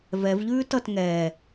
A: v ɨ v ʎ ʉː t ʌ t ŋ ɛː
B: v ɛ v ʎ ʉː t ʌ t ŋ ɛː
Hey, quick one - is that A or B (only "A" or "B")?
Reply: B